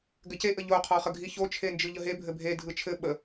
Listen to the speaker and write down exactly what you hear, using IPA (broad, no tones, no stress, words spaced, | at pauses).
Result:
ɡɘceʔə ʎoqʰɔχə ɡʱiçot͡ʃʰend͡ʒɯ ʎəɦebʱɘ bʱe dʱɯt͡ʃʰɘ ɓə